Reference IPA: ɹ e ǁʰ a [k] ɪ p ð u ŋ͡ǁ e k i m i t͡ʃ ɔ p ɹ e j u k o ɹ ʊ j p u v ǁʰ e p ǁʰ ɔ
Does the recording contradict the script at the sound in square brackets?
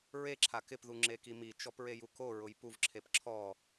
no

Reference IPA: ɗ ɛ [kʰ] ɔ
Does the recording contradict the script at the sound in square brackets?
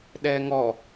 yes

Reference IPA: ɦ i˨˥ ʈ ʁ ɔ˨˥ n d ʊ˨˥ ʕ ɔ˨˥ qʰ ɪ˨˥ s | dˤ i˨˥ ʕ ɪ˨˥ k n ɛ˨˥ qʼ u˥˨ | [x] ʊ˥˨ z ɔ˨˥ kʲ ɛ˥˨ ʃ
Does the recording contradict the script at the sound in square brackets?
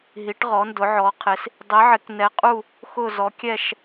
no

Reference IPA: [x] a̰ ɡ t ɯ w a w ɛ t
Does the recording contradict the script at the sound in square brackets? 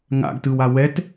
yes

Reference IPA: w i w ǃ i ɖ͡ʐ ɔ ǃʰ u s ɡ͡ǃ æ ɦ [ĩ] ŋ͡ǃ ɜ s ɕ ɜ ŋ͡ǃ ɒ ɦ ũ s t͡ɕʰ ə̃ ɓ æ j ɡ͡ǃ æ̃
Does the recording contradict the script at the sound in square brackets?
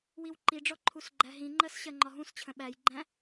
no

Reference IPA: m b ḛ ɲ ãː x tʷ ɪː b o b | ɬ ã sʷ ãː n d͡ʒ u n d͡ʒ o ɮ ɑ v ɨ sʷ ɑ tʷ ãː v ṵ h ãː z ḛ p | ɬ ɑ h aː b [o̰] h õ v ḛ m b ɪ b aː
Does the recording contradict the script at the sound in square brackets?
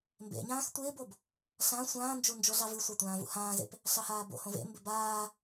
no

